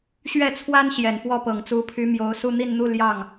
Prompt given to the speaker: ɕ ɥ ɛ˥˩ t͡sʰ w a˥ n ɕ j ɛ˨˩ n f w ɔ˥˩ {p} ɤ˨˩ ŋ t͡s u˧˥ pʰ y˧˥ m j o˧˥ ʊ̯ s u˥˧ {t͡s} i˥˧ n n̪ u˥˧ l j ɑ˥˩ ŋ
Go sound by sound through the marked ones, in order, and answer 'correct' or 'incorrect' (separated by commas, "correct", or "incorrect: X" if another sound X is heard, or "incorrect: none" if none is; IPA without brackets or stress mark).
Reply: correct, incorrect: n̪